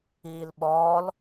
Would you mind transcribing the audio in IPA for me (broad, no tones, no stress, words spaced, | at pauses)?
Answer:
iːlɓɔːl